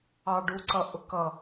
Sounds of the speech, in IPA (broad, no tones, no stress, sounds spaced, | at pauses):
ɑ ɖ u ǀ ʌ ʔ ʊ k ʌ